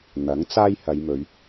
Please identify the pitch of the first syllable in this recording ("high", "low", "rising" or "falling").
rising